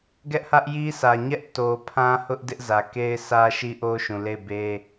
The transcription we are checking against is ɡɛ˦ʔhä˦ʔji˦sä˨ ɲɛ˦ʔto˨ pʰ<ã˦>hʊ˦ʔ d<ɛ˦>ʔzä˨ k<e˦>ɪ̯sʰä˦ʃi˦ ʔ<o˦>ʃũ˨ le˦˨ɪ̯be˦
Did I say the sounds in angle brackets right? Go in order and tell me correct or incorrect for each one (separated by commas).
correct, incorrect, correct, correct